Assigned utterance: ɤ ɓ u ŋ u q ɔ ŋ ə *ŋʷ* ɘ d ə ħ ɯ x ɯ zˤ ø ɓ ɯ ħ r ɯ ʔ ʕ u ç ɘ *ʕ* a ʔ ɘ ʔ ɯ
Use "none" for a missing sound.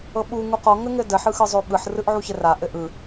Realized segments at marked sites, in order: ŋ, r

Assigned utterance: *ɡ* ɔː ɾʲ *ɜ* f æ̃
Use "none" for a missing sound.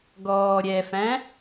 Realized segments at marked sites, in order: ɡ, ɛ

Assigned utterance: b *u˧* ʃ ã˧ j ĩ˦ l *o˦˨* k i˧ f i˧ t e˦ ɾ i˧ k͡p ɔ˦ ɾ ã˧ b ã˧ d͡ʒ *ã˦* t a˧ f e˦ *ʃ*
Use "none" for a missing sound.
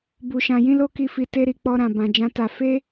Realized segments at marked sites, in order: u˧, o˦, ã˦, none

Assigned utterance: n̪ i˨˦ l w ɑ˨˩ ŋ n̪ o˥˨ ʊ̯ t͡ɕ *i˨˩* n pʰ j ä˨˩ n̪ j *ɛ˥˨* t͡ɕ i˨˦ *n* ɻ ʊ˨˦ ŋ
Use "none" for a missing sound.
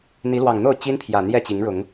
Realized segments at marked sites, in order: i˦, ɛ˥˨, ŋ

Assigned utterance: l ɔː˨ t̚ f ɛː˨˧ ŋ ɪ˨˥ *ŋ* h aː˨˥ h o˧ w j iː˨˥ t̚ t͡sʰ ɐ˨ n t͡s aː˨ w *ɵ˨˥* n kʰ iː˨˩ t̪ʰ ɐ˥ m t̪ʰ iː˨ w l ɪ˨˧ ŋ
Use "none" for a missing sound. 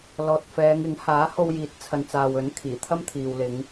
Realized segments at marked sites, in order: ŋ, ɵ˨˥

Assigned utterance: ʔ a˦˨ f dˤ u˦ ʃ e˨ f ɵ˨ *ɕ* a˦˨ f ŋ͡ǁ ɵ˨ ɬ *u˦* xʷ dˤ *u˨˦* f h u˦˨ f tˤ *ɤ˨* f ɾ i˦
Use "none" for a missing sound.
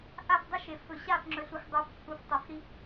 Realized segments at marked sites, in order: ɕ, u˨, u˨˦, ɵ˨

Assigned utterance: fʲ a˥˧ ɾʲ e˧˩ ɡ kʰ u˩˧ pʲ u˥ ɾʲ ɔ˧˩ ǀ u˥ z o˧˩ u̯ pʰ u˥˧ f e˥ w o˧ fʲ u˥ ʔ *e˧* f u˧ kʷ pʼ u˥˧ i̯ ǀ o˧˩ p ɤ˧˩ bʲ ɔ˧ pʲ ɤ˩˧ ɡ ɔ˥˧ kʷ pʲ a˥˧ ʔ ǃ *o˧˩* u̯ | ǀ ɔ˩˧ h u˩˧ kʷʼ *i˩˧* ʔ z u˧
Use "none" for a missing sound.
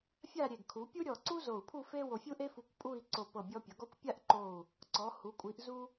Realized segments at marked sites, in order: e˥, o˧˩, i˩˧

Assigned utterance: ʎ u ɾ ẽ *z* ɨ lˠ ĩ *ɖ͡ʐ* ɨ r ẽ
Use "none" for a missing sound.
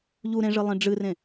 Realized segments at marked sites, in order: ʐ, ɖ͡ʐ

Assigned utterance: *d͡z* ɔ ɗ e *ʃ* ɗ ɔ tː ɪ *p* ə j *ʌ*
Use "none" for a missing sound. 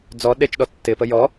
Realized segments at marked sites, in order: d͡z, t͡ʃ, p, ɔ

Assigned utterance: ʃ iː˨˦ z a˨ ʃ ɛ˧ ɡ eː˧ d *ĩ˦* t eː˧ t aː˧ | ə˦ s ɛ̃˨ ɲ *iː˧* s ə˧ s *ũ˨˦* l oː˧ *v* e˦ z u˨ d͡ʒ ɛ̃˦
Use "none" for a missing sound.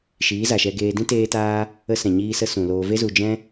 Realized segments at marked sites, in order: ĩ˦, iː˧, ũ˨, v

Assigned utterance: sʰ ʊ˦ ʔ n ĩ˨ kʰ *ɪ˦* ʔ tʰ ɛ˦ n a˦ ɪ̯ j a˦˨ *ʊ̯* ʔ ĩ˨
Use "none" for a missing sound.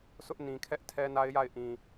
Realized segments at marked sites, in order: ɛ˦, ɪ̯

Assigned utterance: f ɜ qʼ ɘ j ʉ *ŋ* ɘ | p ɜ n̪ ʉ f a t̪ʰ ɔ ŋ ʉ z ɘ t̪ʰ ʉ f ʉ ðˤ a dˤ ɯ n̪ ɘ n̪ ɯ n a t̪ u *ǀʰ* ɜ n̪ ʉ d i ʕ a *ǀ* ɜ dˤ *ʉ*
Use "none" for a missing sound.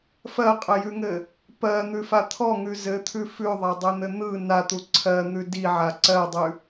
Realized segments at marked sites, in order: ŋ, ǀʰ, ǀ, ʉ

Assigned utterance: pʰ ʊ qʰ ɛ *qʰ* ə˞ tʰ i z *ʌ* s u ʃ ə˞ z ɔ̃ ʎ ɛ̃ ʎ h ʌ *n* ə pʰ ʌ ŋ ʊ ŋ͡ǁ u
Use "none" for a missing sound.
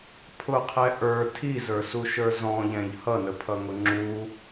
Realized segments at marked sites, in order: ʔ, ə˞, n

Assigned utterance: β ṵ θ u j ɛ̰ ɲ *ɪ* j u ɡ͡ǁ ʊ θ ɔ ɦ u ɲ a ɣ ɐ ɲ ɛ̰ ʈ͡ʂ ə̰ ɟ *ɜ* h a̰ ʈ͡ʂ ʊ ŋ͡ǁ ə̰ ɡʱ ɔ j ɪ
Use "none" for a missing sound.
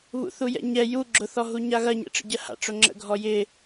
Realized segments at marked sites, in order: ɛ, ɜ

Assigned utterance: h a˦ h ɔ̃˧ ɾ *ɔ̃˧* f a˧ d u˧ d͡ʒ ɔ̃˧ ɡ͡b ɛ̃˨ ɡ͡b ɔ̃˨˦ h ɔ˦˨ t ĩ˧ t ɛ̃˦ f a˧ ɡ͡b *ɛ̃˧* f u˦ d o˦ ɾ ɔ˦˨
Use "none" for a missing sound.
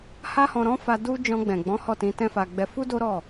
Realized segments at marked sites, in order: ɔ̃˦, ɛ˧

